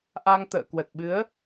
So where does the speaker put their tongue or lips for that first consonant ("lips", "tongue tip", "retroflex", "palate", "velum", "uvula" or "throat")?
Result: throat